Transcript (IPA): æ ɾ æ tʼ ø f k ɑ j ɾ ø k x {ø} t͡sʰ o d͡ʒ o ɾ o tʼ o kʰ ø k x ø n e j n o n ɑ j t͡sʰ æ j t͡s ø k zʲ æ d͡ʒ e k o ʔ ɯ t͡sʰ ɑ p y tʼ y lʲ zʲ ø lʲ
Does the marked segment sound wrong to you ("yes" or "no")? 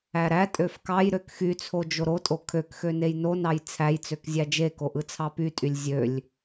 yes